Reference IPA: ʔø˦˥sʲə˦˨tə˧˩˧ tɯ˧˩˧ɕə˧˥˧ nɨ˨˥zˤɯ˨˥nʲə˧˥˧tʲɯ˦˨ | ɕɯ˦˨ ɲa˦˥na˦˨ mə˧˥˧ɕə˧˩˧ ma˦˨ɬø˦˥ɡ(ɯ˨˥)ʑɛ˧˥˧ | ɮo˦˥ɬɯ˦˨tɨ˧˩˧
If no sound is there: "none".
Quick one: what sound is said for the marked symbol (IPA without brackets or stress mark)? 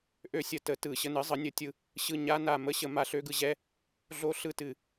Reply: ɯ˨˥